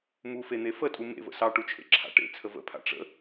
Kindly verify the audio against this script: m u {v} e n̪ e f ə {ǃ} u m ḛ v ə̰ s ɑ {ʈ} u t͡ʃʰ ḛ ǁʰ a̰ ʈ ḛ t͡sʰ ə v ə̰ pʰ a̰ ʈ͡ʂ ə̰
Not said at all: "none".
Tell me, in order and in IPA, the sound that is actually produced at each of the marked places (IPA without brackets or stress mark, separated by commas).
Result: f, tʼ, ʈ